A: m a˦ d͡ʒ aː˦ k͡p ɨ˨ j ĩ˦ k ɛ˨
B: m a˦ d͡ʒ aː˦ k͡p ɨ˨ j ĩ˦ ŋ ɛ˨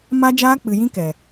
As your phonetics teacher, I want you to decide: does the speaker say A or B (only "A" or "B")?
A